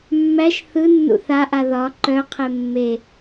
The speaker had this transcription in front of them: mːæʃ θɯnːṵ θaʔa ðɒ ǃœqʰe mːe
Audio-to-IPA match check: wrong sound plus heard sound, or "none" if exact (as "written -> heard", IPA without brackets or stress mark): none